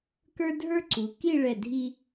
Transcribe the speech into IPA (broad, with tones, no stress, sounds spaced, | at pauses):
k ə˞˥ dʱ ə˞˥ ǀ u˩˧ k i˥˧ ɭ ɛ˧˩ dʱ i˧